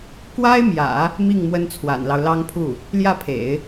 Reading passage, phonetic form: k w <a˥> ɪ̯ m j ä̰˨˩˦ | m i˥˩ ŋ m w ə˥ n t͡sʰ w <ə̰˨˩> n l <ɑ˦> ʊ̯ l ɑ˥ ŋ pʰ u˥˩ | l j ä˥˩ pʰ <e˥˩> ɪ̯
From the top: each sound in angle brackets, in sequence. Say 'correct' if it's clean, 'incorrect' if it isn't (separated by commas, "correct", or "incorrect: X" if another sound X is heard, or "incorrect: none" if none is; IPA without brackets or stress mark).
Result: correct, incorrect: a̰˨˩, correct, incorrect: ḛ˨˩˦